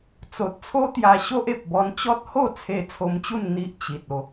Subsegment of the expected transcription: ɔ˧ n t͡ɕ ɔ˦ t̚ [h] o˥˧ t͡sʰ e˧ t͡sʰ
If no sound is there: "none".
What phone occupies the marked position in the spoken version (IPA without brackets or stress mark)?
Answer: h